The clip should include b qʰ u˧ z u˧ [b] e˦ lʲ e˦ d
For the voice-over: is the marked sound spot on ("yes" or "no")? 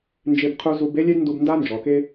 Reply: yes